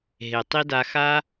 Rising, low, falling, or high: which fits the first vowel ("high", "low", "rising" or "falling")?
low